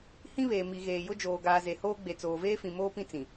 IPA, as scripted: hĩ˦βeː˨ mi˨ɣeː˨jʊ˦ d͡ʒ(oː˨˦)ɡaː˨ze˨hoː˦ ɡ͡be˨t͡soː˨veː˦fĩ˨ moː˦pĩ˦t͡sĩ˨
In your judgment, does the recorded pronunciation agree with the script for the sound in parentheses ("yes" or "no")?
no